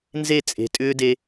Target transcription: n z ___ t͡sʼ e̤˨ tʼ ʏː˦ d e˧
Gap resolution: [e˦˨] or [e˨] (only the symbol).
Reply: e˦˨